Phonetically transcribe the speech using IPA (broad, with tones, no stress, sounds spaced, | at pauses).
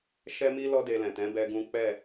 ʃ ɛ˦ m i˦ l ɔ˦ d e˧ l ɛ̃˨ t ɛ̃˨˦ b ɛ˦ ɡ ũ˦ k͡p ɛ˦˨